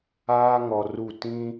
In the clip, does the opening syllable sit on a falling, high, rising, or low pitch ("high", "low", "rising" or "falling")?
high